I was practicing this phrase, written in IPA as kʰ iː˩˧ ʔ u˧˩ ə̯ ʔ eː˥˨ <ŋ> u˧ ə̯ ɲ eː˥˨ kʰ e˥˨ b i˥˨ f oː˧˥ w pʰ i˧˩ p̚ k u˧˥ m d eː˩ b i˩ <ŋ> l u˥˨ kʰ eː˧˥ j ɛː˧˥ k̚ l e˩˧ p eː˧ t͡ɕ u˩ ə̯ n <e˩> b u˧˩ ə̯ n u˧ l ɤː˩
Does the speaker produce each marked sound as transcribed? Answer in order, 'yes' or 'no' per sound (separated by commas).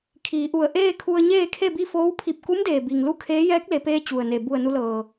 no, yes, yes